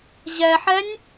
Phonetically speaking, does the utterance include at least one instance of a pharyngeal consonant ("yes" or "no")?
yes